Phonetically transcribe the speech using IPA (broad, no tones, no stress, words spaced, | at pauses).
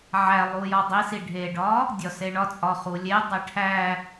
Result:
ʕæ lˠujɒdˤisi ɖʱeɖɒ | dʲɒseɳɒt͡sʼɒ χulʲedˤe ʈʰæ